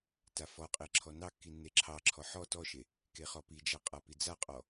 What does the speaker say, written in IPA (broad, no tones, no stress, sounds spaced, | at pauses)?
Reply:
t a f ɔ qʼ e ǁʰ ɔ n ɑ kː i nː e ǁʰ ɑ ǁʰ ɔ ħ ɔ t ɔ ʃ e | k e χ ɔ p i d͡ʒ a qʼ a p i d͡z a qʼ ɔ